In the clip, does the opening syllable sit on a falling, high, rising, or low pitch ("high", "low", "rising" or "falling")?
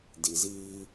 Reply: low